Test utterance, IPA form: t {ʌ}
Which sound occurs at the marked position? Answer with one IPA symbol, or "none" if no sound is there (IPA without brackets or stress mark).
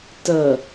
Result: ʌ